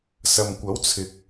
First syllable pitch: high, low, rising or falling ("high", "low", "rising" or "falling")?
low